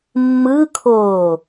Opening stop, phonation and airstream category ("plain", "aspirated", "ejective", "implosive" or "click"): aspirated